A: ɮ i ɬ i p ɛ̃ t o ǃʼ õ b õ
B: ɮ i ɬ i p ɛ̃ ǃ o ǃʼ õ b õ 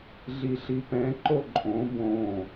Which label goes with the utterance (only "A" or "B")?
B